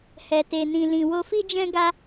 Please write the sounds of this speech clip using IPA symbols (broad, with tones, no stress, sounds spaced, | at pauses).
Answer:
h ɛ˨ t e˨ n ĩ˨ l ĩ˨ w o˧ f i˦ d͡ʒ ɛ̃˦ ɡ a˦